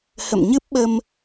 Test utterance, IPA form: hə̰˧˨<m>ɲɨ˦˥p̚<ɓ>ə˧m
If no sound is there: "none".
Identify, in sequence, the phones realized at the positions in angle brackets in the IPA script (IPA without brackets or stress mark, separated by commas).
m, ɓ